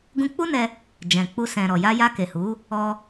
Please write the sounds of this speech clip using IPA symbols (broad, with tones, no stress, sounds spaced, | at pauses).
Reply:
ɡ ũ˧ k͡p u˦ n ɛ˧ | d͡ʒ ɛ̃˨ k͡p u˧ s ɛ̃˨ ɾ ɔ˨ j a˧ j a˧ k e˨ h u˨˦ | ɔ˧